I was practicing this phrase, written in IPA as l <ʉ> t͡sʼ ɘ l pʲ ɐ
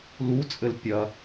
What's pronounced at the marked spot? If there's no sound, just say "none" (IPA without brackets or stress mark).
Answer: u